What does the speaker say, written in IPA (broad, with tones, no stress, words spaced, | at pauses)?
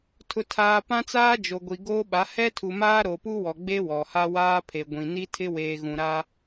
tʰʊ˨tʰaː˨ pã˦t͡saː˦d͡ʒo˨ɡʷi˨ ɡoː˦ɓa˨˦ hɛ˦tʰu˨maː˦ ɾo˨pu˦wɔ˨ ɡ͡be˦wɔ˨ ha˦waː˦pʰe˨ɡʷĩ˨ ni˦tʰɪ˦ weː˨ɣũ˨ɾa˦